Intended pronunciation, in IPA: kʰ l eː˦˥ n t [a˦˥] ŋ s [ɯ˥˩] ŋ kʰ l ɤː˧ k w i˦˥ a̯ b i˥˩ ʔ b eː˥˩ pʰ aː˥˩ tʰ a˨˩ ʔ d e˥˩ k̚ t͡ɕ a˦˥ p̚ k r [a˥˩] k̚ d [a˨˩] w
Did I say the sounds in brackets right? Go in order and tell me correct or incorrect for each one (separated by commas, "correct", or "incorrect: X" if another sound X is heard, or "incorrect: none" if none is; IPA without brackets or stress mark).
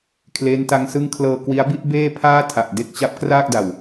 correct, correct, incorrect: aː˥˩, correct